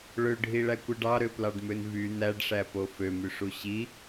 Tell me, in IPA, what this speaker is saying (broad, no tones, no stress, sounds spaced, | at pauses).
ɭ ø ɖʱ i ɭ æ kʷ ɯ ɖ ɑ ɾ ø p l ɑ ɖ m ø n v y n æ ɖ ʂ æ p o f ø m y ʂ u ɕ i